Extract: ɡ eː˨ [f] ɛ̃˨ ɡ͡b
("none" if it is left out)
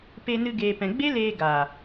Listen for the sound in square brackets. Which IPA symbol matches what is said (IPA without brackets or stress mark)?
p